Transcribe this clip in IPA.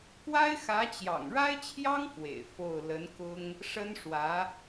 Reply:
kwa˥ɪ̯xä˧˥t͡ɕjɑ̰˨˩ŋ ɻa˥ɪ̯t͡ɕʰjɑ˥ŋ fwḛ˨˩ɪ̯fo˥˩ʊ̯ lə˧˥nkʊ˥ŋ | ʂə˥nʂwä˧˥

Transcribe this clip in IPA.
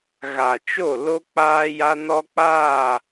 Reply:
ɣa˨t͡ʃo˦˨ lo˦ k͡paː˦ja˦nɔ˦k͡paː˦˨

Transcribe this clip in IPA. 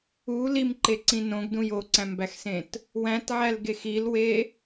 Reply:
u limǃeǀĩ nõɡdũj oǀæ̃mbæxsẽt | wæ̃tʕælɡex ilwe

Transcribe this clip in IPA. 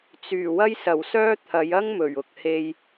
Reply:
t͡syː˨˩wɐ˥jsɐ˨˩wsœː˥ t̪ʰɐ˨˧jɐ˥ŋ mɵ˨˩ɥʊ˨k̚ he˨j

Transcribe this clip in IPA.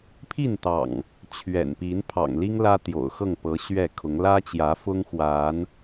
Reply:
pʰi˥˨nt̪ɑ̰˨˩ŋ | t͡ɕʰɥɛ̰˨˩npi˨˦n pʰɑ̰˨˩ŋli˦ŋ lä˦t̪jo̰˨˩ʊ̯xɤ˥˨ŋpɤ˨˦ ɕɥɛ˥˨kʰʊ˨˦ŋ lä˦t͡ɕjä˨˦fʊ˦ŋ xwa˨˦n

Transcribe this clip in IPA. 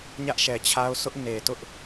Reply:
ɲä˦ʔʃɛ˨t͡ɕʰa˦ʊ̯ sʊ˦ʔ ne˨tʊ˦ʔ

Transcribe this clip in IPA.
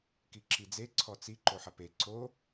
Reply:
kiǁid͡ze ǀʰɔt͡si ǃoħɐpe ǀo

